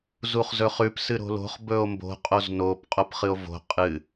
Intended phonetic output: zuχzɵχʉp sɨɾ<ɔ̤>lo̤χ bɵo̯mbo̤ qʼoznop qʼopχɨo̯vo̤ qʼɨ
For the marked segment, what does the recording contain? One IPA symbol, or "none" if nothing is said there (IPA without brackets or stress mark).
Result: o̤